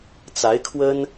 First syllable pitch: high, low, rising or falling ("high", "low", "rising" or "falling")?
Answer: rising